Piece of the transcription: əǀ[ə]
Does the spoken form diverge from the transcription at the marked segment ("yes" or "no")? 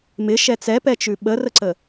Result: no